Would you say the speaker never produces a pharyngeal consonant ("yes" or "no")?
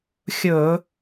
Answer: yes